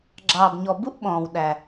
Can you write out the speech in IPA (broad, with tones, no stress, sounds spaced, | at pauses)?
ɡ͡ǁ ɑː˩ b ɲ ɔ˩ b u˥ ʔ ɓ ɔ̃ː˩ w ɗ æ˩